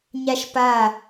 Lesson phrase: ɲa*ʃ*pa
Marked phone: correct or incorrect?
correct